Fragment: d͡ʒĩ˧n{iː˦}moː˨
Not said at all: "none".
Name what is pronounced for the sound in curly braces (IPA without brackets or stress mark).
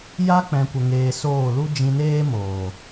eː˦